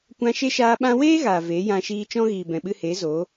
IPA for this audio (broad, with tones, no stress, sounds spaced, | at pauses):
kʷ ã˧ ʃ e˦ ʃ aː˧ ɓ ã˦ w eː˦ ɣ aː˨ v e˨˦ j ã˧ ʃ iː˧ t͡ʃ ɔ̃˦ ɣ iː˨ b ɛ̃˨ ɓ ɨ˧ h eː˨˦ z o˨˦